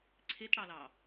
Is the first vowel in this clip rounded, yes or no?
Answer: no